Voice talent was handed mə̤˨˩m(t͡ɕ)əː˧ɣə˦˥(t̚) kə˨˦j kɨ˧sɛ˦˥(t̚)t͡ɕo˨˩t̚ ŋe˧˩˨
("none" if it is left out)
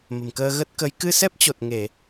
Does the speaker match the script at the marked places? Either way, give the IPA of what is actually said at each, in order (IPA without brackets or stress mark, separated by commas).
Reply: k, t̚, p̚